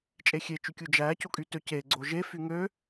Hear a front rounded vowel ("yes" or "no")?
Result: yes